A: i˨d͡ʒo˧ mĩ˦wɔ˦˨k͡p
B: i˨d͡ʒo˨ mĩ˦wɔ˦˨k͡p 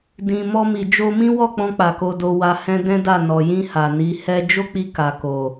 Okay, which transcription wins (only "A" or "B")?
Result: A